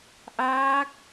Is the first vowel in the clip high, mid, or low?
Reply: low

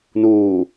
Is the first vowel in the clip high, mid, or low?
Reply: high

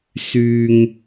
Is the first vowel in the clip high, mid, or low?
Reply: high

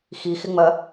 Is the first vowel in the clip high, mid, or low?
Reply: high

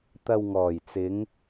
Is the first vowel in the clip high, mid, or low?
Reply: low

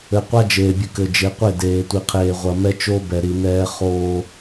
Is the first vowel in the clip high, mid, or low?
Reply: mid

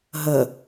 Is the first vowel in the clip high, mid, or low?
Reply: mid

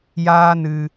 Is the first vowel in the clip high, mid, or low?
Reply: low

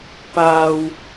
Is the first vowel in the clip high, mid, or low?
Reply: low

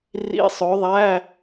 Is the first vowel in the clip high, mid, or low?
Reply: high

